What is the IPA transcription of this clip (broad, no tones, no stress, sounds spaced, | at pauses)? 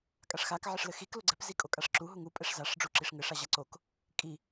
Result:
kʼ a ʂ x a k ʕ ɘ ʂ l ɘ x i k l o ɡ͡ǀ ɛ p z i kʼ o kʼ a ʂ ǁ u ɦ u ŋ u pʼ ɛ ʂ z a ʂ ɖ͡ʐ u ǁ i ʂ ŋ ɘ ʂ a ʑ a ǀ o k | kʼ i